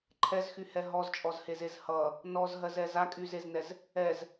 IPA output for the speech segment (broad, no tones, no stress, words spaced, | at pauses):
ǃʰɛzxyhɛ ɦɔzt͡ʃʼɔzhezez hʌ | nɔzɦɜzɛz akʼyzeznɛz | ɛz